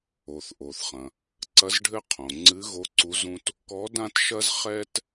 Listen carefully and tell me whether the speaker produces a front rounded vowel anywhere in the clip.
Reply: no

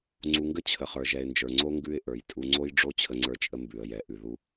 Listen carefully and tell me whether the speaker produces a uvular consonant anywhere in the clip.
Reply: yes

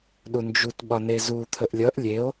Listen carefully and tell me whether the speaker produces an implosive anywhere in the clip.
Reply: yes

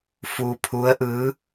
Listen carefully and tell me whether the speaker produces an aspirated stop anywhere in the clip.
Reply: yes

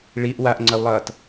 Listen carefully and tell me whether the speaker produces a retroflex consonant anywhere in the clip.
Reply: yes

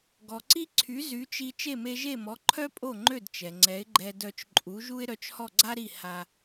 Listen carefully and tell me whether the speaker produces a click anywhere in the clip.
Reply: yes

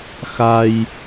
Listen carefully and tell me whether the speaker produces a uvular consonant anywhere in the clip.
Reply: no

